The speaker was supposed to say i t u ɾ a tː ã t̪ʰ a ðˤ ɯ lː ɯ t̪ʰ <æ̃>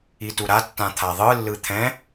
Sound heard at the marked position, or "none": ɛ̃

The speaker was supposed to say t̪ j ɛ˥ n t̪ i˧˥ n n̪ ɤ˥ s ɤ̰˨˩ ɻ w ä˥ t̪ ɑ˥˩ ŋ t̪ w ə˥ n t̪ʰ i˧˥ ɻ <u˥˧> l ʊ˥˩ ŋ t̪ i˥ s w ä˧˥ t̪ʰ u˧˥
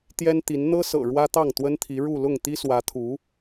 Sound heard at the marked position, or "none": u˥˧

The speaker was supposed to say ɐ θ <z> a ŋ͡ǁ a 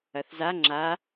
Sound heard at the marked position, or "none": z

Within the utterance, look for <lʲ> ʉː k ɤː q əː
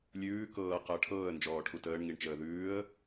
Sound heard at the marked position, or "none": lʲ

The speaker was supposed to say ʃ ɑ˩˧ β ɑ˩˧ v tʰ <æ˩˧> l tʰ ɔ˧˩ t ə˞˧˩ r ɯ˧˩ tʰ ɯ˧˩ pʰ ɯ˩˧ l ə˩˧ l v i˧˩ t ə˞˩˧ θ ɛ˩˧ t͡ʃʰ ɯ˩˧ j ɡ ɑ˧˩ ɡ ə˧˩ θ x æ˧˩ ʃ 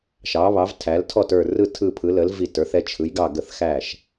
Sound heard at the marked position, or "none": æ˩˧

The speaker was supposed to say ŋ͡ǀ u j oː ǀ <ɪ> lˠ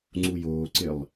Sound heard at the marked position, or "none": ɪ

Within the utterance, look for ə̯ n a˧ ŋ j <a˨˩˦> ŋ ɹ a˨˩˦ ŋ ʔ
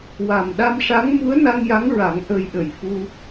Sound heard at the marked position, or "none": a˧˥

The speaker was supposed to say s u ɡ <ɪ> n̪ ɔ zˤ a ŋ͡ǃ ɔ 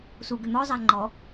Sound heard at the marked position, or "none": ʏ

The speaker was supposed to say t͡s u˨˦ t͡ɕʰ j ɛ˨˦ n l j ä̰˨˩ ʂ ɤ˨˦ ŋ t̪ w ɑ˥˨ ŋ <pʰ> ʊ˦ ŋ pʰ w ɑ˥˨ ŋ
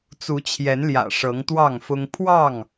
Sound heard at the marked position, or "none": f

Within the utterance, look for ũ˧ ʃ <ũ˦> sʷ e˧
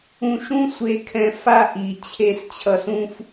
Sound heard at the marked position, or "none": ũ˦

